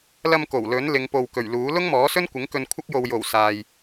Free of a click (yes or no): yes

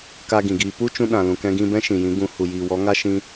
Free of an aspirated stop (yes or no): yes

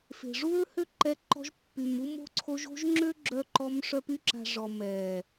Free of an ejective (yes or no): yes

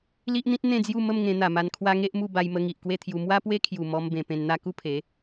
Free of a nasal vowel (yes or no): no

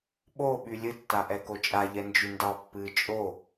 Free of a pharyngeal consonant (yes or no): yes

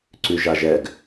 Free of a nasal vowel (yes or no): yes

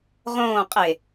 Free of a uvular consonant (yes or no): no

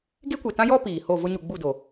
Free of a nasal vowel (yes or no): no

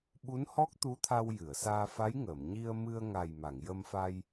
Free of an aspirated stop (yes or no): no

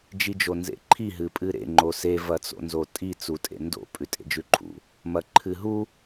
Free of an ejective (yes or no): no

